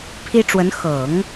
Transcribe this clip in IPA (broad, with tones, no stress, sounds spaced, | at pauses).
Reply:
pʰ i˥ ʈ͡ʂ w ə˧˥ n x ɤ˨˩˦ ŋ